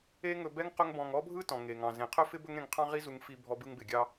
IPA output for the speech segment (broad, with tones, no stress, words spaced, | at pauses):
e˥ ŋɵ˧bɛ˥ŋ qɵ˥ŋbɔ̃˧ŋ ɔ˥bʱɯ˥tɔ̃˩ ŋe˩ŋɑ̃˩ zẽ˩qʰɵ˥fɪ˥ bɵ˥ŋɾẽ˧ŋqʰɑ̃˥ ʁi˥zu˧ŋfi˧bʱɔ˧ bɯ˧ŋbɪ˩ɡʲɑ˧